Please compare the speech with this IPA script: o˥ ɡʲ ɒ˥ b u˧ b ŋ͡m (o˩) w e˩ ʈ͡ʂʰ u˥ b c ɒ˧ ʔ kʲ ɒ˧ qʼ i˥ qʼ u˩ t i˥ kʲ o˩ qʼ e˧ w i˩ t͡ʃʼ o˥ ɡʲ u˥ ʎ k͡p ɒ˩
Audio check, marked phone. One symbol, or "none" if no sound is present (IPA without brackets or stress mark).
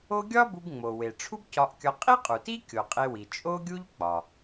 o˩